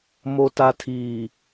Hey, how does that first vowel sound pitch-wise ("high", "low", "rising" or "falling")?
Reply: low